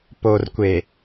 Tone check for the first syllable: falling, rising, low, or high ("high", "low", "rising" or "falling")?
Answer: low